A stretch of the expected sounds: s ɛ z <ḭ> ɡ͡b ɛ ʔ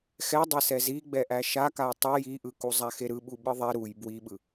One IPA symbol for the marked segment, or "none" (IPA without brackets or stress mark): i